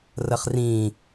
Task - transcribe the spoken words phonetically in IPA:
rəχrĩ

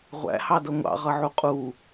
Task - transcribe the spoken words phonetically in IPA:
ʁʷæ̰hɑdʌ ŋʷɑ̰ʁʌʕu qʼu

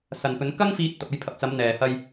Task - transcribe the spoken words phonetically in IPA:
sɐ˨nkɵ˨˧n kɐ˥ŋfiː˧t̚ t̪ɐ˨p̚ɐ˧jpʰɐ˨p̚t͡sɐ˨˧m n̪ɛː˨hɐ˧j

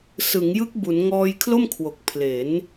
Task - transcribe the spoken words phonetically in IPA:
sɯ˩˦ŋ jɯ˦˥k̚bu˩˦n ŋɔː˧jkʰlo˥˩mkʰwo˨˩k̚ pʰle˩˦n

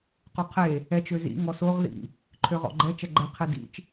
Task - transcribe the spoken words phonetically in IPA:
quqʰe | ɛt͡ʃ øzḭ ŋɔsoʁ ðḭ | ǃʰøʁɔ̰ɡ͡ǃɛ t͡ʃɛɡ͡ǃɛ qʰedḭt͡ʃ

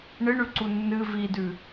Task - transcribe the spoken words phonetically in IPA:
ɳɨɳʉǀu nːɨ vidʉ

